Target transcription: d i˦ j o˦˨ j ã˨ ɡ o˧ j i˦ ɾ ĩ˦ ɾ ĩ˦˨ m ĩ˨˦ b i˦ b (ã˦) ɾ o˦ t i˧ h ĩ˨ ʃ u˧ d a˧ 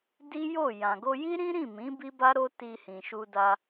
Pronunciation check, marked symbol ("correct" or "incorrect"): incorrect